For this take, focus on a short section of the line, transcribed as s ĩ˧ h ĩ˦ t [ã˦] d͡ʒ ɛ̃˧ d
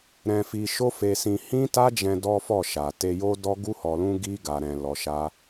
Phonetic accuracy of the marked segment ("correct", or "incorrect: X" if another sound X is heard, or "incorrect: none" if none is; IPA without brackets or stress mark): incorrect: a˦